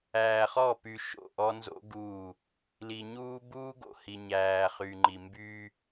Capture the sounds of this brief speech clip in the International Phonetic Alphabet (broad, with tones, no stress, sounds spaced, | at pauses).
æː˨ χ ɔ˦˨ p y˨ ʃ o̰˦˨ ʔ ɔ˦ n z o̰˦ ɡ uː˦˨ | l i˨ ɲ uː˦ b uː˦ ɡ o̰˨ h i˨ ɲ æː˨ χ y˨ ŋ͡ǃ i˨ m b yː˦